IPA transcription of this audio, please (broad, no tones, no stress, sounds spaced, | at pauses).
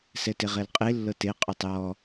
s ɛ t e ʁ ɛ l qʼ e lː ɤ t e qʼ u tˤ j ɔ